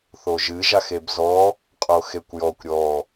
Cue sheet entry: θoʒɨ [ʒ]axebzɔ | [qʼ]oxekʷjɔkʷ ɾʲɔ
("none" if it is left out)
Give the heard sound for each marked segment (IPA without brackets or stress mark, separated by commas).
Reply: ʒ, qʼ